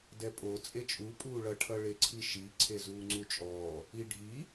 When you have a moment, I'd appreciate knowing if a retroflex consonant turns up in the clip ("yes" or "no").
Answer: yes